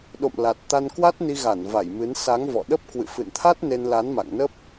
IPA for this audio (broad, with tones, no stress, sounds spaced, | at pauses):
ɗ o̰˧˨ m l a˨˩ t̚ t̪ a˧ n k w a˦˥ t̚ n i˧ ɣ a˧˩ n v a˧˩ j m ɨ˨˦ n s a˨˦ ŋ v ɔ̰˧˨ ɗ ə˦˥ p̚ k w ɨ̰˧˨ f ɨ̰˧˨ n t̪ʰ a˦˥ t̚ n e˧ n l a˨˦ n m a̰˧˨ ŋ n ə˦˥ p̚